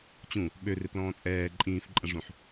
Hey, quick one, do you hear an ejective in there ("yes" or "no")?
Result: yes